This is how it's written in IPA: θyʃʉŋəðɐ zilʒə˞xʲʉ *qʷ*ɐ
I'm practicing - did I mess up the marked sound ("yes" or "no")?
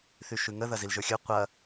no